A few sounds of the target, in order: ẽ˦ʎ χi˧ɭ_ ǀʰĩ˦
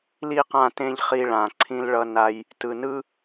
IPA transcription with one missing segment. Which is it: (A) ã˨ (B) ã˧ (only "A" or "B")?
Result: A